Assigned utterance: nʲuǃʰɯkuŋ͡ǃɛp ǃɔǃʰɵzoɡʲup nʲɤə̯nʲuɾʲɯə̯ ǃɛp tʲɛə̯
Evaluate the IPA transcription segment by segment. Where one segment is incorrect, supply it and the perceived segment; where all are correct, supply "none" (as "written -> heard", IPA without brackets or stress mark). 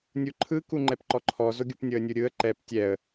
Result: ɵ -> ɔ